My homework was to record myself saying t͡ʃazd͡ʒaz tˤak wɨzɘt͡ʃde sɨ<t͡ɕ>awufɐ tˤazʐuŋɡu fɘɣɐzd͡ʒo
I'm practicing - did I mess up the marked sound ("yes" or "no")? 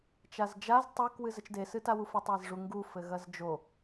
yes